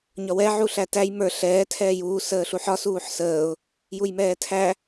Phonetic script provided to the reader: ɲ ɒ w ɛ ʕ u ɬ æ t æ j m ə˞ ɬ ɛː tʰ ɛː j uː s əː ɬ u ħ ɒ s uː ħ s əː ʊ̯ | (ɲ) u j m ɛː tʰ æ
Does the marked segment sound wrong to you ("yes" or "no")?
yes